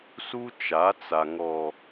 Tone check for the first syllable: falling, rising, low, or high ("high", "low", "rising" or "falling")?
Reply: high